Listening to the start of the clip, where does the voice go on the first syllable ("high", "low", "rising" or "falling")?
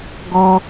high